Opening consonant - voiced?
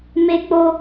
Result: yes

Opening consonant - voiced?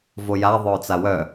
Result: yes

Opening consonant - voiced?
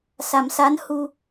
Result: no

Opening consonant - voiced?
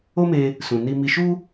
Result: yes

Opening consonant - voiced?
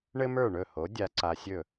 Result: yes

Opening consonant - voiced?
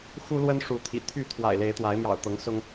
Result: no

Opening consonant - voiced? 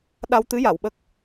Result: yes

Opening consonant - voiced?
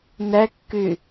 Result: yes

